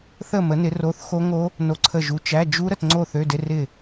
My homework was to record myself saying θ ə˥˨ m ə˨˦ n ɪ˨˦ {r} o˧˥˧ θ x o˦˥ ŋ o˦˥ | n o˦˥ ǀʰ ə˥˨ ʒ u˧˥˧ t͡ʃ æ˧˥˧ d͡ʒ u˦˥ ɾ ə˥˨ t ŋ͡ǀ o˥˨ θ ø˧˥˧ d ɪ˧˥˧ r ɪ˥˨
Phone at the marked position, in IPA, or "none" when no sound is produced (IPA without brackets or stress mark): r